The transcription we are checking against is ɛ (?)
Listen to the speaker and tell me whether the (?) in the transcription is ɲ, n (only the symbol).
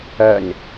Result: ɲ